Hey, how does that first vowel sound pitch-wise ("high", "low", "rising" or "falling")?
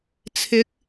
rising